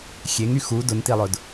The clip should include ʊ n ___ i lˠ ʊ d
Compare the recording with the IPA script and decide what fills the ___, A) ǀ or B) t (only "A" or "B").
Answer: B